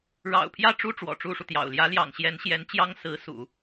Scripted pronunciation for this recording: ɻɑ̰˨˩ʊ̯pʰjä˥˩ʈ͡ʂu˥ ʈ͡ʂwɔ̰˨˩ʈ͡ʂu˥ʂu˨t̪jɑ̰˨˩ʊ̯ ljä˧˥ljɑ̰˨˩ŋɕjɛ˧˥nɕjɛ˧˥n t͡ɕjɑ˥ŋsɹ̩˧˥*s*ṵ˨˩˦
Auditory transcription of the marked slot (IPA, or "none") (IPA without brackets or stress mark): s